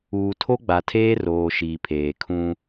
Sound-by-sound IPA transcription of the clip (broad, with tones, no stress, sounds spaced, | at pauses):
uː˨ tʰ o˦ ɡ͡b a˨ tʰ eː˦ r oː˨ ʃ iː˨ pʰ eː˨ kʰ ũ˦